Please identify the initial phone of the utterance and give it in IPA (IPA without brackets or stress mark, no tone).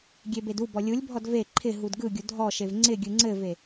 ɡʲ